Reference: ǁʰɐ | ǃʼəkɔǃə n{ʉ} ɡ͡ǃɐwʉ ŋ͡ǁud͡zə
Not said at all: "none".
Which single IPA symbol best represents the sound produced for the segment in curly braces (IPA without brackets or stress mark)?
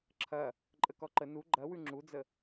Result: u